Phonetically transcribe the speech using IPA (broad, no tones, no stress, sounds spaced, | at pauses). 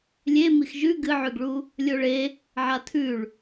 lʲ e m i x ʒ ʉ ɡ ɨ ʕ ʉ ɡ ɭ u | lʲ o ɭ e | ʕ a tʰ ʉ ɭ